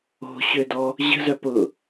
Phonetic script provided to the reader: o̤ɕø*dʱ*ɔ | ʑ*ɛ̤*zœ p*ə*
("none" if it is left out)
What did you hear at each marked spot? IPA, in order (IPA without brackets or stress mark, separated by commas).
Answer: d, ə̤, ʊ